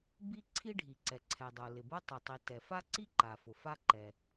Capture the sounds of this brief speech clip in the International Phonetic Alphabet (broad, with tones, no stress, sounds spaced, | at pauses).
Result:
b i˥ ǀʰ i˥ ɖʱ i˩ ǀ ɛ˩ ǀʰ ɛ˩ dˤ o˩ l ɪ˩ b ʊ˥ tˤ ɪ˩ tˤ i˩ t ɛ˩ f a˥ ǀ i˥ ǃ a˩ f ʊ˩ f a˥ ǃ ɛ˩